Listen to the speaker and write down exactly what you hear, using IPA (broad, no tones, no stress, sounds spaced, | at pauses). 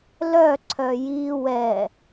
l œ ǀʰ œ j i w ɛ